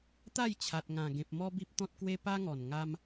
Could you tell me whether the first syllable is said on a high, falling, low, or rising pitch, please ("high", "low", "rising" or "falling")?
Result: falling